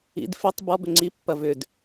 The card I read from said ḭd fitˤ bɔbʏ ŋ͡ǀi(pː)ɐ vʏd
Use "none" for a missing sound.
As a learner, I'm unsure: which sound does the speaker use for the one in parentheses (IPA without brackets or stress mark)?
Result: pː